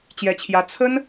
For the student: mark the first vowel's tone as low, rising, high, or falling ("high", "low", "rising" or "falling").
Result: high